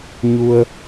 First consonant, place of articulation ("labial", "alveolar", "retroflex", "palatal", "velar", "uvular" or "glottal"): palatal